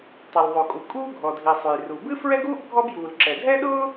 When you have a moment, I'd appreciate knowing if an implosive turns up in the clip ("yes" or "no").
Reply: yes